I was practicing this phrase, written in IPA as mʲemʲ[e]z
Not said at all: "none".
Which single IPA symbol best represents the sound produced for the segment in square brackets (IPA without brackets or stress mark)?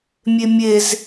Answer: e